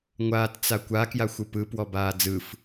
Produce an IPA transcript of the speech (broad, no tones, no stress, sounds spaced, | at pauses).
ŋʷ aː t t͡s a kʷ a k j a xʷ ɯ p ɯ p w ɔ b aː d͡z ɯ f